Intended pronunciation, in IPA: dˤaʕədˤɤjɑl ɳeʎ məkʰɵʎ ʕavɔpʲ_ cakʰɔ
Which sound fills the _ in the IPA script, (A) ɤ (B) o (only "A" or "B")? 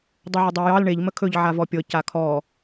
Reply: A